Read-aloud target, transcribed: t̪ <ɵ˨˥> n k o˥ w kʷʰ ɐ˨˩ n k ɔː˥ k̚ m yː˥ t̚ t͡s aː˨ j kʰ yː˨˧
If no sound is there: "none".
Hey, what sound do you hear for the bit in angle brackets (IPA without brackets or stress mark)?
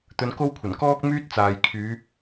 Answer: ɵ˧